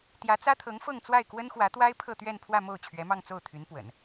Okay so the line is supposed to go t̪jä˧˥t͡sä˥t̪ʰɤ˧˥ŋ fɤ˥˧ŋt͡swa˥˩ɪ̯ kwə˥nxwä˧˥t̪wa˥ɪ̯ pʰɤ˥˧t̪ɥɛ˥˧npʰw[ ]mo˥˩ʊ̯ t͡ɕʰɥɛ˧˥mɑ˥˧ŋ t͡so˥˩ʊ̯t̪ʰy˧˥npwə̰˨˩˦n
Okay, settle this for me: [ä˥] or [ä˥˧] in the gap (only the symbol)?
ä˥˧